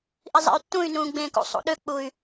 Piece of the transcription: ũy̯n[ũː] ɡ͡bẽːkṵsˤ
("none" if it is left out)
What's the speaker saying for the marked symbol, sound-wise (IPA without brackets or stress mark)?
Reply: ũː